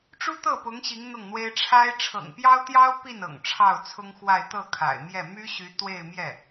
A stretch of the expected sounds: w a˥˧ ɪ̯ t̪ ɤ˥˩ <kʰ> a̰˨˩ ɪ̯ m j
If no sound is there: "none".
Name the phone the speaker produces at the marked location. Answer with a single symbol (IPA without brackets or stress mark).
kʰ